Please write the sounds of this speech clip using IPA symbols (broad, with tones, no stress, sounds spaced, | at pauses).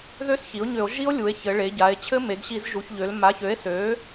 ð ø˦˥ s ç i˩˥ o̯ ɲ ø˧˩˧ o̯ ʒ i˦˥ o̯ lʲ u˩˧ e̯ ç ɘ˩˧ ɭ e˩˧ ɟ a˩˧ e̯ t͡ɕʰ ɘ˦˥ m e˩˧ ɡ ɕ i˧˩˧ z ʒ u˩˧ ç ʎ ø˩˧ l m a˩˥ ç ø˩˥ e̯ s ø˩˥